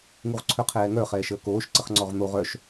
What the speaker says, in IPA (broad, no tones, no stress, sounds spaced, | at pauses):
ŋ u ʁ ǀʰ œ qʰ ɛː ŋ œ χ ɛː ʃ əː k oː ʃ ǀ ə χ ŋ͡ǀ ɔ ʁ n̪ o ʁ œ ʃ